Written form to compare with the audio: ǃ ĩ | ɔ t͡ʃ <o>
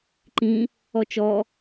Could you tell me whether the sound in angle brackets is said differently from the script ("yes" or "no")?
yes